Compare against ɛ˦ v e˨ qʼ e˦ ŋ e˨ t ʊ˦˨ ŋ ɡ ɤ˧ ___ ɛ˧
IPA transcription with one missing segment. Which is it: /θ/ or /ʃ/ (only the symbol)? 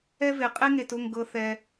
θ